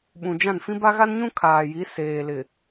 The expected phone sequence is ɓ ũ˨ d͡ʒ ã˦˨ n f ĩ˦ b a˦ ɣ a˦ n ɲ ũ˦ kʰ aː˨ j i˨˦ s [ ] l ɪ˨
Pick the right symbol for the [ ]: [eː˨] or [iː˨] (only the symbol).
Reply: eː˨